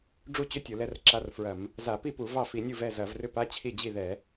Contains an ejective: no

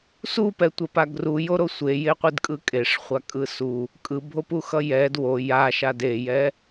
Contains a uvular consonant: yes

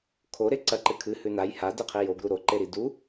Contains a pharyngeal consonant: no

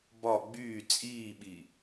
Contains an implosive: yes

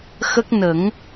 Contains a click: no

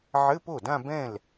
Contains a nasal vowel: yes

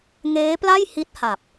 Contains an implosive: no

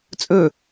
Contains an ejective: yes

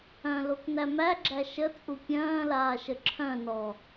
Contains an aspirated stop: yes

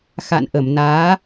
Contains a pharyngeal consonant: no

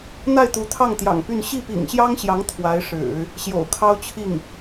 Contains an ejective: no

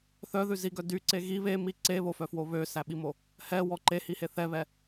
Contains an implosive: yes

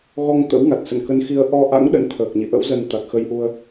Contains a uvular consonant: no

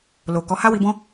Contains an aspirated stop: no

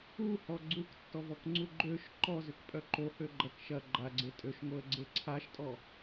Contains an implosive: no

